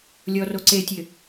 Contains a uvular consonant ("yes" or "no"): no